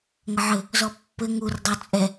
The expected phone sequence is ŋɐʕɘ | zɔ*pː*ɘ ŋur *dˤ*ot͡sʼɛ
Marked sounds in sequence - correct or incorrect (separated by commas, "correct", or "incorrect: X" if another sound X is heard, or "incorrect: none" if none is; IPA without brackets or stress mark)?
correct, correct